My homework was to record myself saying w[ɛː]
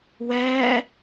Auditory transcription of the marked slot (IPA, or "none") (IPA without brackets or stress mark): ɛː